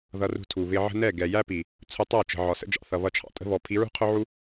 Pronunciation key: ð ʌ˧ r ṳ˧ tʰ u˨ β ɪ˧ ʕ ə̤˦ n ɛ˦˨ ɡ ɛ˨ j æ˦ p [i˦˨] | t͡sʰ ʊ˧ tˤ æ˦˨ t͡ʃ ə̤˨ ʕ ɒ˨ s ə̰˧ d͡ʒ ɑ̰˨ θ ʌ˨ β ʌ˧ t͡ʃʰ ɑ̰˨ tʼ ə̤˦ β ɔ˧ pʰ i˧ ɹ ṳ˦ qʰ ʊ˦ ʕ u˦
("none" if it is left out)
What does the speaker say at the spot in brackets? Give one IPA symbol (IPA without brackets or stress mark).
i˨